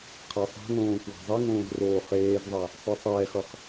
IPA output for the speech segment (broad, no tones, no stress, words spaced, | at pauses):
qʰasˤa̤ŋõː kwa̤zˤiŋõːz roːχeːzðˤa | sˤɯsˤɛːxʌχ